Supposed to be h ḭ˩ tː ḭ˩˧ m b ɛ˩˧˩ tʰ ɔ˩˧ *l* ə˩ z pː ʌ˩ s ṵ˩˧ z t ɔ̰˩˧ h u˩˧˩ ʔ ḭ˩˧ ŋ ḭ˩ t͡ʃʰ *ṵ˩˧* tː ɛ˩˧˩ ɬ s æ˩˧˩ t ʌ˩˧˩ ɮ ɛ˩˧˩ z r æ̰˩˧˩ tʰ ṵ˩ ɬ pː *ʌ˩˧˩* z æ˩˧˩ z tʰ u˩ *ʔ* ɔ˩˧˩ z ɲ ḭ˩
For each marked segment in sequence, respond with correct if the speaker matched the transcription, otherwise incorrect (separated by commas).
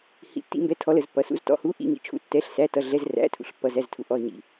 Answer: correct, incorrect, incorrect, correct